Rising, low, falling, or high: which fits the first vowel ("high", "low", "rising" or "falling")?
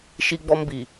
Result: high